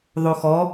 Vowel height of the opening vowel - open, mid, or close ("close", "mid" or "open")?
mid